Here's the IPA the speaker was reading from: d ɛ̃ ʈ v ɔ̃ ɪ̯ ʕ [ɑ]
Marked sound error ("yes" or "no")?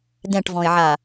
yes